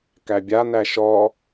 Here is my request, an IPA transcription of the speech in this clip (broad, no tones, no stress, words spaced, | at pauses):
kæbʲa næʃɔ